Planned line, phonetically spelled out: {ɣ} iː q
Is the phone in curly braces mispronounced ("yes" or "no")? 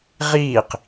yes